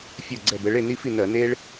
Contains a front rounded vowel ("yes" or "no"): no